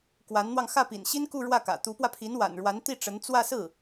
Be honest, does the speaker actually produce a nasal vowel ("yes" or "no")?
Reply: no